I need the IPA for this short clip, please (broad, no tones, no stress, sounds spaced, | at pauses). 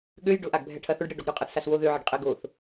ɠ ø j ɖ ʊ ʔ a ɡ bʱ ɛ ʈʰ ɐ θ ʊ ɖ ɽ e ɖ ɔ ɡ ɾ ʏ qʼ ɐ θ s a s w o ð ø ʕ ɛ ɖ qʼ e ɡ o θ